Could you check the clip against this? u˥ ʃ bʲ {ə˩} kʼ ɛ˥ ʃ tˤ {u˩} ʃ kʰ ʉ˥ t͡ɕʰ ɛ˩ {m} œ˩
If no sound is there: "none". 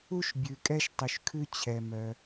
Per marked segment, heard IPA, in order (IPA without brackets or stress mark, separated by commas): ʉ˩, ʉ˩, m